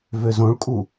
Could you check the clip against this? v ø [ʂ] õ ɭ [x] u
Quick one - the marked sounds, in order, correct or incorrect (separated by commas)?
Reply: incorrect, incorrect